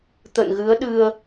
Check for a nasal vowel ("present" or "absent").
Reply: absent